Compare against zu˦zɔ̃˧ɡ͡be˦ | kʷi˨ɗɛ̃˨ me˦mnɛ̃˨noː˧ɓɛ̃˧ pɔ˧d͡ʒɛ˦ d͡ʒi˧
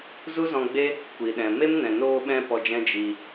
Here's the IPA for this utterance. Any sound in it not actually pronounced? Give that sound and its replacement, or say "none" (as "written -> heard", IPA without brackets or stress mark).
ɛ˦ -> ɛ̃˦